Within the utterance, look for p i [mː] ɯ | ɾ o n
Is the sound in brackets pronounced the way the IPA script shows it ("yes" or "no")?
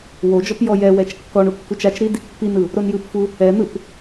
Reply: no